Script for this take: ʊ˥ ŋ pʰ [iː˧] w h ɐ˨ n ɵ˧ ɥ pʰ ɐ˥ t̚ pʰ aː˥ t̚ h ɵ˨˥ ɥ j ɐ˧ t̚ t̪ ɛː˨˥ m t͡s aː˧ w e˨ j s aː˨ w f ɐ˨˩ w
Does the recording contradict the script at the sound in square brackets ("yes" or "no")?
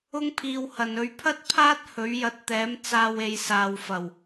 no